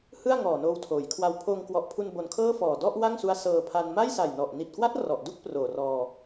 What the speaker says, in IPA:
h ɯ˥˩ a̯ ŋ ɔː˨˩ n oː˧ w tʰ oː˩˦ j kʰ w a˧ w pʰ oː˧ ŋ k w ɔ˨˩ ʔ pʰ u˧ n b o˧ n kʰ ɤː˥˩ f ɔː˨˩ d ɔ˥˩ ʔ w a˥˩ ŋ s u˦˥ a̯ s ɤː˧ pʰ a˧ n m a˥˩ j s a˨˩ j n ɔ˨˩ ʔ n i˨˩ t̚ k w a˦˥ t̚ r ɔ˨˩ ʔ d u˥˩ k̚ p r oː˨˩ r ɔː˧

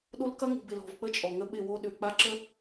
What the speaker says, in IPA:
ɗ o˦ l k ɐ˦ ŋ ṳ˨ b ɪ˨ l ɔ̤˨ v k͡p ə˦ t͡ʃʼ ɔ˨ ŋ ə˦ ɓ ɪ˦˨ w o˦ ɗ ʏ˨ k͡p a˦ ǁ ə˦

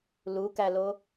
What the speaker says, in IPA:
l u k æ l o

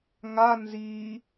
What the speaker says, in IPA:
ŋ a n z i

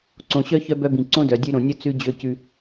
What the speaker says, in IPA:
ǀ õ˨ ɕ œ˦ ç œ˦ b œ˦ b ĩ˨ ǀ õ˦ d œ˨ dʲ ʉ˦ ɾ õ˨ nʲ ɵ˦ t͡s ʉ˦ d͡ʑ ø˦˨ c ʉ˦

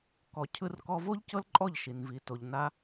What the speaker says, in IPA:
k ɔ˨ cʰ ɯ˧ r k ɔ˧ v o˦ ʎ c ɤ˦ l ǃʼ ɔ˦˨ ʎ ʃ i˨ n v i˨ t o˨ ʎ n a˧

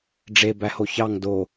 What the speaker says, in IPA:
ɖ͡ʐ e b æ h o ç ɑ ŋ d o

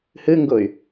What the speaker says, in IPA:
h ɨ ŋ ɡ ʊ y̯

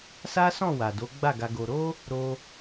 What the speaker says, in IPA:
s a˦ s ɔ̃˦˨ w a˨ d o˨˦ ɡ͡b a˦˨ ɡ a˧ ɡ o˧ ɾ o˦ | ɾ o˧

